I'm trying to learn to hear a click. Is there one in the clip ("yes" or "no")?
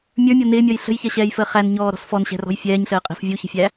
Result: no